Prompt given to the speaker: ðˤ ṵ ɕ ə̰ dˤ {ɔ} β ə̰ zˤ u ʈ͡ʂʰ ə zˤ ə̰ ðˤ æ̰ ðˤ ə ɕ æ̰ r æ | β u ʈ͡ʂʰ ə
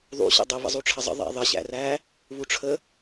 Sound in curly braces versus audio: incorrect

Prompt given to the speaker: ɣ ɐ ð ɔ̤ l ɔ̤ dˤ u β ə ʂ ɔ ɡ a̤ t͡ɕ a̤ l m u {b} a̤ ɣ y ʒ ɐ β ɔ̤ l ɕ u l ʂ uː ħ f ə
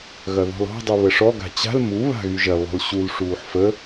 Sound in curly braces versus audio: incorrect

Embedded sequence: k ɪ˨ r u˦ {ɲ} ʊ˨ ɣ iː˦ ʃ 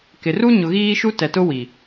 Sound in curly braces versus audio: correct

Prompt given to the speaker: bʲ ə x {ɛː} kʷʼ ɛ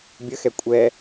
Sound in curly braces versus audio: incorrect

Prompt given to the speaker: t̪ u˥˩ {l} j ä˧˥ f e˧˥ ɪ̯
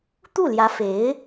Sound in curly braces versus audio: correct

